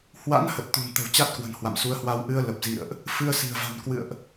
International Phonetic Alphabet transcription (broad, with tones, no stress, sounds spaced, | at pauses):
h w a̰˧˥ n h ə˨˩ t̚ t̪ ṳ˨˩ n t̪ ə̤˨˩ w t͡ɕ a˦˥ t̚ k w ə̤˨˩ n h w a̰˧˨ m s u˨˦ ə̯ h w a˧ w ʔ ɨ˧ ə̯ l ə˨˩ p̚ z ḭ˧˨ ə̯ ʔ | f ɨ˧ ə̯ s i̤˨˩ ə̯ v a̤˨˩ n k w ɨ̰˧˨ ə̯ ʔ